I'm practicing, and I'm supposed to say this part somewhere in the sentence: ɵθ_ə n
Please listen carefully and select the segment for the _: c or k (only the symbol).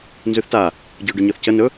c